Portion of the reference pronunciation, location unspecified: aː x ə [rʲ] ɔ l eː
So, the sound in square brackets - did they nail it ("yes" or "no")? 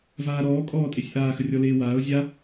yes